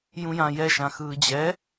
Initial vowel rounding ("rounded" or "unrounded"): rounded